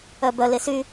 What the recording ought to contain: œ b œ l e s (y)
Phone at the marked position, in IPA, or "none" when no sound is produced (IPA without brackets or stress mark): y